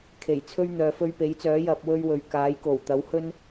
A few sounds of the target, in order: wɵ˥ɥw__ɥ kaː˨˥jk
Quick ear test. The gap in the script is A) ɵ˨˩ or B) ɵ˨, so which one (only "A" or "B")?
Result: B